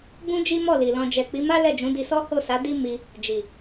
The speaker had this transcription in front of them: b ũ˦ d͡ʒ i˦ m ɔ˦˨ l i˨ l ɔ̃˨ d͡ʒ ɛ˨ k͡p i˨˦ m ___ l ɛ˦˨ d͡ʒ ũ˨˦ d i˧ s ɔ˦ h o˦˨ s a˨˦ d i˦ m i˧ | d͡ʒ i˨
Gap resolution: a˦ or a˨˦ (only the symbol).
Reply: a˦